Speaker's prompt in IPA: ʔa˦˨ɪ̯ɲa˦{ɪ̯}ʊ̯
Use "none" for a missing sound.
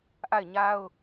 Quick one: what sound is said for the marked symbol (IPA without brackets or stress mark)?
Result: none